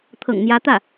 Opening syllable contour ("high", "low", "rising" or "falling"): low